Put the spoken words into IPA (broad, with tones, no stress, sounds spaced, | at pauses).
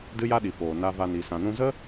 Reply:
d ɨ˦ j a˦ ɗ i˨ f oː˨ n a˧ v a˧ n i˨ s ã˨ n ũ˧ z ə˦